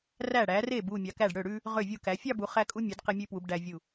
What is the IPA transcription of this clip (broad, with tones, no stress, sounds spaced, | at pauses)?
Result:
r æ˧˩ ɽ æ˩˧ r e˧˩ b u˧˩ mʲ ɑ˩˧ k æ˧˩ ɖ ɽ ø˧˩ ɽ ʉ˥ | ʁ ø˧˩ vʲ u˧˩ k æ˩˧ fʲ ɑ˥˧ b u˩˧ χ æ˧ kʼ u˧ mʲ ø˩˧ d q e˧ mʲ ʉ˧ p w u˩˧ b ɖ æ˧ vʲ u˧˩